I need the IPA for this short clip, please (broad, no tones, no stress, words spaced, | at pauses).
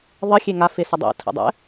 ðˤə xʲeŋa fesədˤḭ tʰə̰dˤɛ̰